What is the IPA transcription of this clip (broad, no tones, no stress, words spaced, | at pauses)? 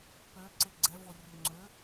pø ǀeɡ͡ǀɛvorʲø ŋ͡ǀø